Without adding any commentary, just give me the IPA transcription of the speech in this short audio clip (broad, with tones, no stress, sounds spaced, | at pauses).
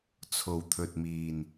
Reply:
t͡sʰ o˨˩ w t̪ʰ ɵ˨ t̚ m iː˨˩ n